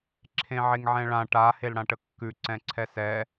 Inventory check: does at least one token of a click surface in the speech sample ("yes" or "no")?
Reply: yes